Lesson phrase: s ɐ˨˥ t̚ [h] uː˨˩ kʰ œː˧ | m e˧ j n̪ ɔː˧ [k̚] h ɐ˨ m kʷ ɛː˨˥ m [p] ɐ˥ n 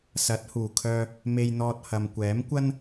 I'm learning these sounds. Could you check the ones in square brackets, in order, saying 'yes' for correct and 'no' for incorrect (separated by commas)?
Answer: yes, no, no